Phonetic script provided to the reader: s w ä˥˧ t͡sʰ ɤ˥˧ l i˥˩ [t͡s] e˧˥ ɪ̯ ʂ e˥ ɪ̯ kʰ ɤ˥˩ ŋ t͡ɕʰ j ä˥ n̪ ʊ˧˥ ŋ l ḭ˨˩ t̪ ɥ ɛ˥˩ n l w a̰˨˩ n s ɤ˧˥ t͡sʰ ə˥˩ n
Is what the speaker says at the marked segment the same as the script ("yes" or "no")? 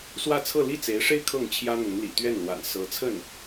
yes